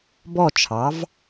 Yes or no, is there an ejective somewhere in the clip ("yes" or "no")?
no